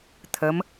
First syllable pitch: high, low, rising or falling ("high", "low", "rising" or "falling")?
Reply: rising